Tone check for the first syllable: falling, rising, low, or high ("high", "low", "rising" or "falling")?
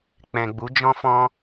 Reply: low